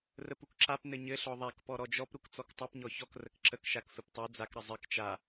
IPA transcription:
r ə p u k ǁ a p n ɘ ɲ ɘ ɬ ɔ ðˤ a k p ɔ ɾ ɔ d͡ʒ ɔ p ɾ u k t͡s ɔ k tˤ u p ɲ ɔ ç ɔ k r ə k ǁ ə k ʃ a k sʷ ə p tˤ u d͡z a k ɾ ə zˤ ɘ k t͡ʃ a

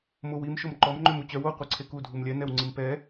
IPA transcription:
m o w i m ʃ o m ǃ ɔ m ŋ͡ǃ ø m u t͡ɕ œ w o qʷ e ǀʰ e k u dʱ u m lʲ ɛ n ɛ w ŋ͡ǀ i m p ɛ

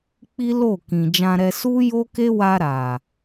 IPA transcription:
k͡p i˦ l o˦˨ k ĩ˨ d͡ʒ ã˧ ɾ ɛ˧ s u˦ j o˦ k e˦ w a˧ ɾ a˨

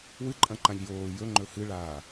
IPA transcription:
w ɨ ǃʼ ɐ̃ ǃ ã ʎ j oː j ɵ ŋ͡ǃ ɵ h ɨ ɭ aː

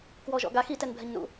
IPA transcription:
k w ɔ ʒ ɔ̰ ɡ a x i t ɛ n bʱ ɛ ɲ n ṵ

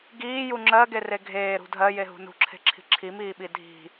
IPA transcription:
ɡ iː j u ŋ͡ǁ ɜ ɡ e r e ɡʱ eː ɾ ṳ dʱ ɜ j e ɦ ṳ n ṳ ǁʰ e̤ ǁʰ i̤ ǁʰ i m iː ɓ i dʱ i̤

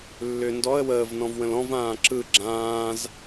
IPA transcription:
lː ʏː n d ɔ ə̯ w əː v n ɔ̃ v w ə̃ l ɔ̃ v ãː ǁ ɯ ɡ͡ǁ ãː z

